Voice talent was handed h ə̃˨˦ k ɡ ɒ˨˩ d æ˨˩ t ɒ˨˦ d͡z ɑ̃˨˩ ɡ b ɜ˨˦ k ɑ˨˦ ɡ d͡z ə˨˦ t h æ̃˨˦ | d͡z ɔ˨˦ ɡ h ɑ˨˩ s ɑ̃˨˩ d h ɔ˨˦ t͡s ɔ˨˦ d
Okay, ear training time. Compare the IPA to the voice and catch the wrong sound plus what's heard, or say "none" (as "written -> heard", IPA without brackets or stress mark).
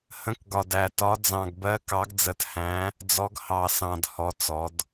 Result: none